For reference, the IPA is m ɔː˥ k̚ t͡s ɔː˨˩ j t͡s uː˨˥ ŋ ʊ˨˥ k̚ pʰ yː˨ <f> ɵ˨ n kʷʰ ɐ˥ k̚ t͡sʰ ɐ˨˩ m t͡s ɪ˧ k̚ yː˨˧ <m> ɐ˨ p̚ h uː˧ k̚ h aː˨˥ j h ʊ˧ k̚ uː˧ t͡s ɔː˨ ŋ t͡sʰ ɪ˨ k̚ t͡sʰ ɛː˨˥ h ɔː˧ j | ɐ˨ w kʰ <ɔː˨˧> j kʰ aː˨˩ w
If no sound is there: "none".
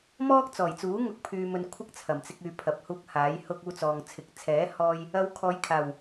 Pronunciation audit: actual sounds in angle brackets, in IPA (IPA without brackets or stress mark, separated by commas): m, pʰ, ɔː˨˧